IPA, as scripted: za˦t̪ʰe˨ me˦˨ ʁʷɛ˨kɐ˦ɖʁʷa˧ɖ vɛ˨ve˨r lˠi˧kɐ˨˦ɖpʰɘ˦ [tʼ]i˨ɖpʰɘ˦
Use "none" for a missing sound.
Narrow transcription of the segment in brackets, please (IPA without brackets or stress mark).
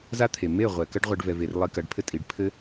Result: tʼ